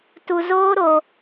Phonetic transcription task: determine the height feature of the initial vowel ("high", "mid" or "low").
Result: high